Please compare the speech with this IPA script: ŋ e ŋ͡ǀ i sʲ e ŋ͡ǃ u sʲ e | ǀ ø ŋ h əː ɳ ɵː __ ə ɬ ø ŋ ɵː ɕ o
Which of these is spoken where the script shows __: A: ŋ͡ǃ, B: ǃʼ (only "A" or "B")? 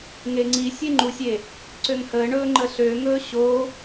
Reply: A